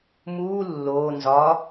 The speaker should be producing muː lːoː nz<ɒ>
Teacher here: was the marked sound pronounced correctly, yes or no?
yes